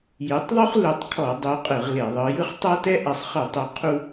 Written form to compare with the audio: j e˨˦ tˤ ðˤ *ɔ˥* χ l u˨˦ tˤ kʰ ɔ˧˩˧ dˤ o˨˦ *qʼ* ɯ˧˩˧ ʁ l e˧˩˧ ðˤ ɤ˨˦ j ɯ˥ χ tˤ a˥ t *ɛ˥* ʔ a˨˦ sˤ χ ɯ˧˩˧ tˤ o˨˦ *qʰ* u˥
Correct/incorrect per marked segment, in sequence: incorrect, correct, correct, correct

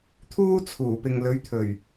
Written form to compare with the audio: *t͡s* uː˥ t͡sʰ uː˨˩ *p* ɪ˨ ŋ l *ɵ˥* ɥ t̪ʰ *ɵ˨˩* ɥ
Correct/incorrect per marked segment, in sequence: incorrect, correct, incorrect, correct

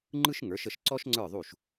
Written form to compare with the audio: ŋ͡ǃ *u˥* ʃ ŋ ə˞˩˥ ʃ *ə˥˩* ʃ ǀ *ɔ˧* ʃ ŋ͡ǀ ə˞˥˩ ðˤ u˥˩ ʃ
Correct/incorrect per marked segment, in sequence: incorrect, correct, incorrect

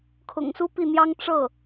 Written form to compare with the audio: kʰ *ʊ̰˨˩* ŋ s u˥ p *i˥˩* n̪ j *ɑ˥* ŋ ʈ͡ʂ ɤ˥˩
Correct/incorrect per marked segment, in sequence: correct, correct, correct

